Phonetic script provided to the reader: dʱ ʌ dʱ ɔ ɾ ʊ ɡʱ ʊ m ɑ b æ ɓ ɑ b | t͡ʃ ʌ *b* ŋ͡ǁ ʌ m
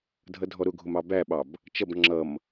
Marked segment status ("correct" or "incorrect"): correct